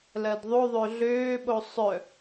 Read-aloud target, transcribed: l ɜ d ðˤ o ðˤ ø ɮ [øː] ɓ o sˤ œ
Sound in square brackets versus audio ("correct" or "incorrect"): correct